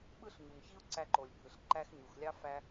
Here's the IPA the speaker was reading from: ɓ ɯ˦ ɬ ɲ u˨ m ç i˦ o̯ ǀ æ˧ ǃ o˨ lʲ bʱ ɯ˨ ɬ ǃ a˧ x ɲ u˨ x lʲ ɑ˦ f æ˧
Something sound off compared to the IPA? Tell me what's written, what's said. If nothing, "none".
a˧ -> æ˧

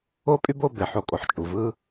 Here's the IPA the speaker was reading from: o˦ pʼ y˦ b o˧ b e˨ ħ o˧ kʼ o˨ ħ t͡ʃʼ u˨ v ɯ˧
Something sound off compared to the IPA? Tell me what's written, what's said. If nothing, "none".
none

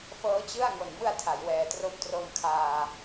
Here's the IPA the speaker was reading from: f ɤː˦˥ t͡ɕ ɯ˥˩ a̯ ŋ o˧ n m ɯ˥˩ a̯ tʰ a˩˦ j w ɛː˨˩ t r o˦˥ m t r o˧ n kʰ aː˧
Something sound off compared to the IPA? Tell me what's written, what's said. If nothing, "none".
none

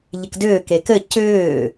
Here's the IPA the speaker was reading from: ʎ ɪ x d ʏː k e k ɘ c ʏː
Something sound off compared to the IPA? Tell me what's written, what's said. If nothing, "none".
x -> k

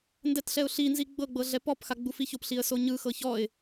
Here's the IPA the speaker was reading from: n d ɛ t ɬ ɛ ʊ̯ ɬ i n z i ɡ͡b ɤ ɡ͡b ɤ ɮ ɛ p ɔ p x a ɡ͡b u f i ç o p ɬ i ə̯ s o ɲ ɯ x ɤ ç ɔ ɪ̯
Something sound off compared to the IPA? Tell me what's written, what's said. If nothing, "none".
none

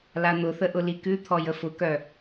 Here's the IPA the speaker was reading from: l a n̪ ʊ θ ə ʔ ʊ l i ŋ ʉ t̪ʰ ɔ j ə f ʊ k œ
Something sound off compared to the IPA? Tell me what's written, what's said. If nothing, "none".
ŋ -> k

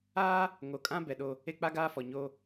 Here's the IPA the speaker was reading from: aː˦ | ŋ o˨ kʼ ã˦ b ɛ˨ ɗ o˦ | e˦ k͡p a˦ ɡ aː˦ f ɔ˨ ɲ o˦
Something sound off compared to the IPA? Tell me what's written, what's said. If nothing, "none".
none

